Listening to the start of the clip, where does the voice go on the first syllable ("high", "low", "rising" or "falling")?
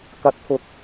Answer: rising